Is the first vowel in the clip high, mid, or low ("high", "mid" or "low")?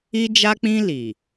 high